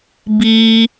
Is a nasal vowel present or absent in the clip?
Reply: absent